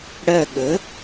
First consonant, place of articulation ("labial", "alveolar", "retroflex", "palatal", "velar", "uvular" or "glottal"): retroflex